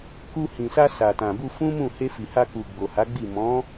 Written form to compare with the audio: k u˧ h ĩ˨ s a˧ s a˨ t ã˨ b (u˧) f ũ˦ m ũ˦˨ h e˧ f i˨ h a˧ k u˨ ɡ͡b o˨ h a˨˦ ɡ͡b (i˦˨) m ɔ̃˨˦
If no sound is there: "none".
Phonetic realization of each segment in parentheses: u˧, i˦˨

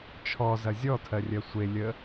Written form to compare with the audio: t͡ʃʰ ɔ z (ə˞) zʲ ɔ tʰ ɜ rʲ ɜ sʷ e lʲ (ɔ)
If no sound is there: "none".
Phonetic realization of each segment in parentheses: ɐ, ə

